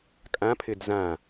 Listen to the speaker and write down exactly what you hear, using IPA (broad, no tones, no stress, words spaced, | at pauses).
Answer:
kʼã pʰɪdzã